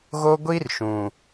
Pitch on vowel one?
high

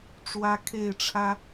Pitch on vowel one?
high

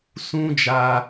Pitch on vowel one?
high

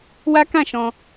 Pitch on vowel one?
high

